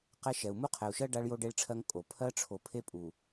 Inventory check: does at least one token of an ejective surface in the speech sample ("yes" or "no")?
yes